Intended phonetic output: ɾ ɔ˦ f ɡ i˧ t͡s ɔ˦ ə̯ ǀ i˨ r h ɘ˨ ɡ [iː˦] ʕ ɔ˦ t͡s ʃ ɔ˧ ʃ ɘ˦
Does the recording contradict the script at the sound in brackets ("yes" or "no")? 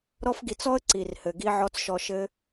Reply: yes